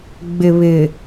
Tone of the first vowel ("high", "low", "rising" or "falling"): low